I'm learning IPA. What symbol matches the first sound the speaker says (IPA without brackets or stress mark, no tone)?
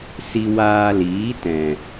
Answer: s